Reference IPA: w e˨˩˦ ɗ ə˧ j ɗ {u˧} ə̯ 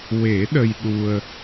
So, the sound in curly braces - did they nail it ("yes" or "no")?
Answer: yes